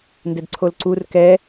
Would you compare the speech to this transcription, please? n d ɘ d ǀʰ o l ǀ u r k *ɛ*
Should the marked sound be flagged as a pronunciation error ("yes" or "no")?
no